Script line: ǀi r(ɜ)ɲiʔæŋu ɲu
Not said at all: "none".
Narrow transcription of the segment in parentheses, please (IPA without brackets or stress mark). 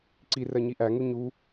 ɜ